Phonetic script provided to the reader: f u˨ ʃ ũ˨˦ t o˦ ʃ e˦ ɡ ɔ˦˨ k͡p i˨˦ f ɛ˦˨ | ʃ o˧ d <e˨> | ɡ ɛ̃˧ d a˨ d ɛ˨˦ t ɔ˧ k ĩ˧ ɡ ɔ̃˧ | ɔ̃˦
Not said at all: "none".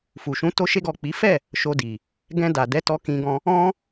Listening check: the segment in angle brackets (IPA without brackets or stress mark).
i˨